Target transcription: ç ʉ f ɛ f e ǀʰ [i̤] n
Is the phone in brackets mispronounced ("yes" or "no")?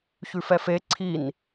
yes